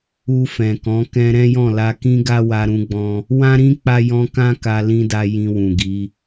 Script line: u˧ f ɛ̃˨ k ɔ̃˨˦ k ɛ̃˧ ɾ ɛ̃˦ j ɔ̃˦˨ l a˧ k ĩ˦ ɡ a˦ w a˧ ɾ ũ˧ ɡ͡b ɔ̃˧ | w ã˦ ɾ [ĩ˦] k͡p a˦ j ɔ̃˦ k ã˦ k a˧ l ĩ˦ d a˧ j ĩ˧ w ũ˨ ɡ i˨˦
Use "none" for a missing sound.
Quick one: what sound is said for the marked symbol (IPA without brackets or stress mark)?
ĩ˦